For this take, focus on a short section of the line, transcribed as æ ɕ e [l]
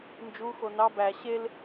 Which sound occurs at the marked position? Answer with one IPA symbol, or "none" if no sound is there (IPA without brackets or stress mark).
l